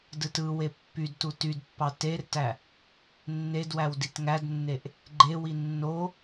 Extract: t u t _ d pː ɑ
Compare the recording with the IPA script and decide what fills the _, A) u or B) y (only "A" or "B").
B